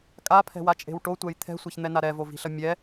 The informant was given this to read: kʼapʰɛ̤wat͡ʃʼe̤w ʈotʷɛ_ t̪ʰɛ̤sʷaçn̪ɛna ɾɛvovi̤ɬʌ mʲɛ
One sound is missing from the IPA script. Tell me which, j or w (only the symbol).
j